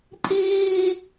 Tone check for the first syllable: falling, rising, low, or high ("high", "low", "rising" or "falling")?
high